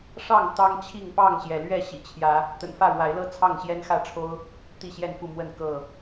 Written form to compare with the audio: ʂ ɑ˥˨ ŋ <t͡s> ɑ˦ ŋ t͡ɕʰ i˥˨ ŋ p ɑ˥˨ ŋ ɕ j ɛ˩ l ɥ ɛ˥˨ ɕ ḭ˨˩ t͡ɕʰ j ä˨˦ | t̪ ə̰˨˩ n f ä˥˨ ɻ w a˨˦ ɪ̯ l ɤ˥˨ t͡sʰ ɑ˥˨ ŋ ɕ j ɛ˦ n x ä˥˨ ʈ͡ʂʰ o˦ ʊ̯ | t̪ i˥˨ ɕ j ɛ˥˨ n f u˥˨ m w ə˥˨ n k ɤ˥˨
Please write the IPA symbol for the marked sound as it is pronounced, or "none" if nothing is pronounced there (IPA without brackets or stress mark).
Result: t̪